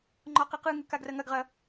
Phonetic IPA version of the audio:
ŋ͡ǃ ɔ q e q ɯ ŋ ɯ k a ɡ r ɐ ŋ ɐ ɡ ʁ ɐ

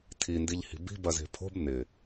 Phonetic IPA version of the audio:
tʰ i n d i ʎ h i̤ b i̤ b ɐ z e̤ pʰ o̤ b n ɪ

